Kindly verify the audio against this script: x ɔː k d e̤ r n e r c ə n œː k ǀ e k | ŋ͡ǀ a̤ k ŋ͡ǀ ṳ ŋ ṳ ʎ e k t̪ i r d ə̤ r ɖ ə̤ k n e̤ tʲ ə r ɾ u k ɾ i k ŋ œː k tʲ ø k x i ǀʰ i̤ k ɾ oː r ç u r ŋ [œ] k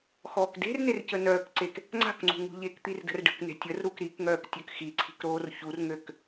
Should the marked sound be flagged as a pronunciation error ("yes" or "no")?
yes